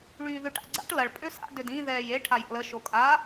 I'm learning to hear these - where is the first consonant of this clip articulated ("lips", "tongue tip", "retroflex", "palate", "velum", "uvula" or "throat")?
retroflex